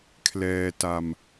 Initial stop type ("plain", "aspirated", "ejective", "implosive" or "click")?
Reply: aspirated